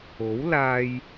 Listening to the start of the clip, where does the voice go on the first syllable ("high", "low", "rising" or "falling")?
rising